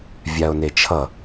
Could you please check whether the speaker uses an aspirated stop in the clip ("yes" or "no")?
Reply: yes